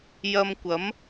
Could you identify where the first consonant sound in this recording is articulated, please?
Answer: palatal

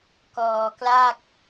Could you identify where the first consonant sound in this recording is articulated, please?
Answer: velar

